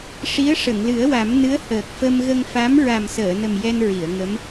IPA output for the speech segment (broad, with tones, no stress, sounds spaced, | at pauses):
ʂ i˧˥ ə̯ ʂ ə˨˩˨ ŋ l ɨ˨˩˦ ə̯ w a˨˩˦ m n ɨ˧˥ ə̯ h əː˨˩ k̚ f ə˧ m ɣ ə˧ ŋ f a˧˥ m ɹ a˨˩ m s əː˨˩˨ n ə˨˩ m j ɛ˧ n ɹ i˨˩˨ ə̯ ŋ ə˧˥ m